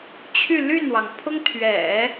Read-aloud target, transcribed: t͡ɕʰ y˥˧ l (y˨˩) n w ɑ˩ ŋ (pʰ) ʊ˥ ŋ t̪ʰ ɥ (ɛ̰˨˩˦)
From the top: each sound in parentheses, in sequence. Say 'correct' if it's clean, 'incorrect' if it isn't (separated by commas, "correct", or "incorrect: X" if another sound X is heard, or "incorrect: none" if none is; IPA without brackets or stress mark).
incorrect: y˥˩, correct, correct